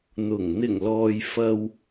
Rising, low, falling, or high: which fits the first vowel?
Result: low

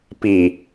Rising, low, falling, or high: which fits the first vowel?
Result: low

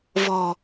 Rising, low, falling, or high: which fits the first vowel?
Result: low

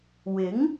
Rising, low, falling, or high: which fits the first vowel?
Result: rising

